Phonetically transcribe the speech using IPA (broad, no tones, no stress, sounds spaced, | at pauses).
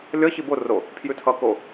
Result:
lʲ ʌ ç i b o r o | pʰ j ʉ tʰ ʌ k o